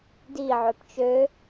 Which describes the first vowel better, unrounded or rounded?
unrounded